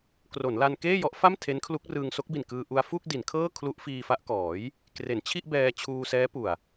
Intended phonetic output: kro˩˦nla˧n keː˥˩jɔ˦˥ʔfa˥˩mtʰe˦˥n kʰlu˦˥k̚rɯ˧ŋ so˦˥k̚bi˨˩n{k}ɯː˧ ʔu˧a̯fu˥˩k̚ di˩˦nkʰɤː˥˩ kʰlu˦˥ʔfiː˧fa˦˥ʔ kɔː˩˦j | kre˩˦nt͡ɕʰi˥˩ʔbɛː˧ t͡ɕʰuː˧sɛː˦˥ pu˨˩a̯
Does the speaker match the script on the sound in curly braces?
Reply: yes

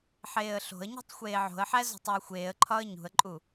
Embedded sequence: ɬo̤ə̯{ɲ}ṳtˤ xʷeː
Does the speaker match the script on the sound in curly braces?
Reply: yes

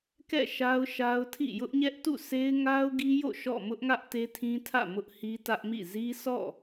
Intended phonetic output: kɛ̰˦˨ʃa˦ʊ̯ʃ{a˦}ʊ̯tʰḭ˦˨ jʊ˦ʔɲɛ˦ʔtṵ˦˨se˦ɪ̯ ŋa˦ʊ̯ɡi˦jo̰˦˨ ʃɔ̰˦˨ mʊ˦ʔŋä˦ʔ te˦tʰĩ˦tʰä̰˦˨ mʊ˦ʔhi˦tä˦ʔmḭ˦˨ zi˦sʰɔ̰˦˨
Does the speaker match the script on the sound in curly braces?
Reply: yes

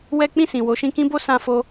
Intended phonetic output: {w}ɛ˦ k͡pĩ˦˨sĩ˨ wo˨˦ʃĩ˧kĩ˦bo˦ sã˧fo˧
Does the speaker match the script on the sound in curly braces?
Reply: yes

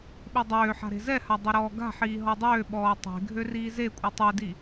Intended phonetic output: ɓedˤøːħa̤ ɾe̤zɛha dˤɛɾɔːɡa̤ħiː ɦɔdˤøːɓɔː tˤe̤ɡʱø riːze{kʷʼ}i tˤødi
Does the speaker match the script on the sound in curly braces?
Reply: yes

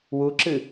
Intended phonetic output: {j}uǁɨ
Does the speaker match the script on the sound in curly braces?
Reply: no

